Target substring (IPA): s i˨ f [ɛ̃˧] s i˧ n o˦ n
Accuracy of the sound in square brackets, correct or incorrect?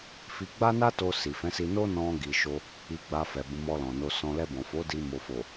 incorrect